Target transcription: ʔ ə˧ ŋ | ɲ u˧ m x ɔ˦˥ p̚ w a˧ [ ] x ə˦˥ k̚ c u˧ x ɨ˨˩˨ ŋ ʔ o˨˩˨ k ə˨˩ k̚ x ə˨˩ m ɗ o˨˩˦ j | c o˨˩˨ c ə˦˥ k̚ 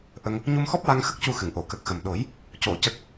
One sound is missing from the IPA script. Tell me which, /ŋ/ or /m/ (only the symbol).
ŋ